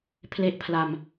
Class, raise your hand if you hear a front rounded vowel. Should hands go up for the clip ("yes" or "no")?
no